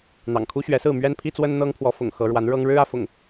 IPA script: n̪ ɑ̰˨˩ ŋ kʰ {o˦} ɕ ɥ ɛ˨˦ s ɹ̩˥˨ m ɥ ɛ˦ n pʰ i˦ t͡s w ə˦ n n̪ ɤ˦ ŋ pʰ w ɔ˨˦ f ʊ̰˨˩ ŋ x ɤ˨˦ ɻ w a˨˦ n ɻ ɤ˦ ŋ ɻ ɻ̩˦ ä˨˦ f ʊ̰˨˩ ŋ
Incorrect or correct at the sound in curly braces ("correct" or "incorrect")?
incorrect